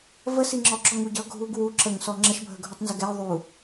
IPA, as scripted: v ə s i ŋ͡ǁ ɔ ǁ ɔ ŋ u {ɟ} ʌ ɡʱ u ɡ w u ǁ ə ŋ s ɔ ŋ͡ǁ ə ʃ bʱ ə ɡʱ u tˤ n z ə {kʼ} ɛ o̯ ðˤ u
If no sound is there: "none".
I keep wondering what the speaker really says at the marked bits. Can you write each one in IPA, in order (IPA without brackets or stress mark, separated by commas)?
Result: ɟ, ɡ